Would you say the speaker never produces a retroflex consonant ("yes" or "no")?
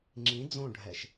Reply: no